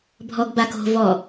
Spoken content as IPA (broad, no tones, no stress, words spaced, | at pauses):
bʱɔɡbako̤ vɔ